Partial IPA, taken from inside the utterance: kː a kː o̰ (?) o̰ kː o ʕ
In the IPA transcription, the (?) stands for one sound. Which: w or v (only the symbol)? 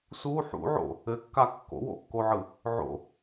w